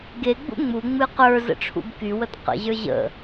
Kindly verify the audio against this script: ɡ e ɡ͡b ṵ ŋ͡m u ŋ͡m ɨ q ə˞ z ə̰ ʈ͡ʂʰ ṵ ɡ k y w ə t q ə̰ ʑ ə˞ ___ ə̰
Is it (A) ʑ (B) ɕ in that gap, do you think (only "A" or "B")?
A